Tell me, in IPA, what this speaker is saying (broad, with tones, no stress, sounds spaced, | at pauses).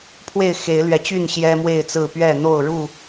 pʰ w e˥˨ ɪ̯ x e˨˦ ɪ̯ l ɥ ɛ˨˦ t͡ɕ y˥˨ n ɕ j ɛ˦ m w e˥˨ ɪ̯ t͡s ɹ̩˥˨ p ɥ ɛ˥˨ n̪ o˥˨ ʊ̯ ɻ u˥˨